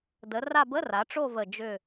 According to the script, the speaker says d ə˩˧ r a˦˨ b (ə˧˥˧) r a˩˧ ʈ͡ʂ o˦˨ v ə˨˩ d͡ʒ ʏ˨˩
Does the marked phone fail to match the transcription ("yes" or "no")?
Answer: no